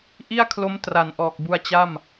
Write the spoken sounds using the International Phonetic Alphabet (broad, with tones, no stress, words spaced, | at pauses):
ʔi˥˩a̯kʰlo˦˥m tra˩˦n ʔɔː˨˩k̚bu˧a̯ t͡ɕa˥˩m